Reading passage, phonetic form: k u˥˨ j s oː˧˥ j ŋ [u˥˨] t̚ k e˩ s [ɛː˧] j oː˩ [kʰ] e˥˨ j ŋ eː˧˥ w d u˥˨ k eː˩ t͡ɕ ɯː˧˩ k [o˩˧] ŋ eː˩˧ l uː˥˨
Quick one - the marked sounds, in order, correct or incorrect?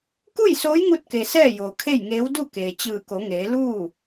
incorrect: u˧, incorrect: ɛː˥˨, correct, correct

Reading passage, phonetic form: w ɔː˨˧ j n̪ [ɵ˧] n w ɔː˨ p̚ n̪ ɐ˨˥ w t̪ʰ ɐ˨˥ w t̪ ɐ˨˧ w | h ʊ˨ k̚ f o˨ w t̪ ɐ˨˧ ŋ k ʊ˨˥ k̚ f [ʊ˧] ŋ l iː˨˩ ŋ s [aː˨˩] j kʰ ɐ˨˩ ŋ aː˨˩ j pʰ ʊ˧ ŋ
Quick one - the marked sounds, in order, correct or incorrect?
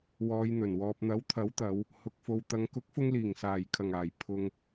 incorrect: ɵ˨˩, correct, correct

